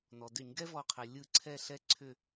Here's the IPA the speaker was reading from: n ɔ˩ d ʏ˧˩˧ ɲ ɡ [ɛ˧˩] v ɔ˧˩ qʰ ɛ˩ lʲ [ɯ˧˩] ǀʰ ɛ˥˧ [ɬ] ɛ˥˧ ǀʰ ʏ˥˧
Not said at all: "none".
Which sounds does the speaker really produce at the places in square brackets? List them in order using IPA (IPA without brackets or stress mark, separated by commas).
ɛ˥, ɯ˧˩, ɬ